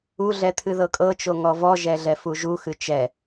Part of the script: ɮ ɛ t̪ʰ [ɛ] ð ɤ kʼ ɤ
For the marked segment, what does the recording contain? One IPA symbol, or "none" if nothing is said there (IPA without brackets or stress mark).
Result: ɨ